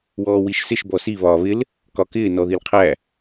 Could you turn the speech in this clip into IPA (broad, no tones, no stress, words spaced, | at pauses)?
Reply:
wɔːwiʃsɪʃ bɔsi βɒːβɪl | kɒkɪː nɔðilqʰæ